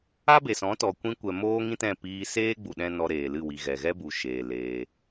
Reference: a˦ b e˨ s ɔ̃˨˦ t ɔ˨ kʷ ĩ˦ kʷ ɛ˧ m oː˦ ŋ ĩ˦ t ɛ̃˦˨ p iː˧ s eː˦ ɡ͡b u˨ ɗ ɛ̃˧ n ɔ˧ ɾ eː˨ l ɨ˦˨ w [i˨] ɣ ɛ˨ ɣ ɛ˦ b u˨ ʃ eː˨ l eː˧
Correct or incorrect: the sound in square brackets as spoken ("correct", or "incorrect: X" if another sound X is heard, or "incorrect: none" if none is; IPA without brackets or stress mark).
correct